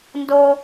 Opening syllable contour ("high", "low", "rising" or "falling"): high